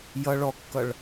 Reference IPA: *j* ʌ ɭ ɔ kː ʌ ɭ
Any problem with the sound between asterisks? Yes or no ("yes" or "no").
no